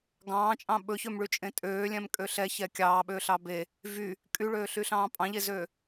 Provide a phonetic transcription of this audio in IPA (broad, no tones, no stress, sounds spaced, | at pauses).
ɡ ɑ̃ː t͡ʃʼ ɑ̃ ɓ ɵ ç ø m ɭ y t͡ʃʼ ẽ tʼ øː lʲ ɛ̃ m kʼ ø ɬ ɛ ç ɛ kʲ ɑː ɓ øː ɬ ɑ b e | v y | kʼ y ɭ øː ɬ y ɬ ɑ̃ː pʼ ɑ̃ ʎ e z øː